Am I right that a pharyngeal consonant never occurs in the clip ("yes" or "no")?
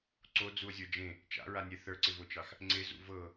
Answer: yes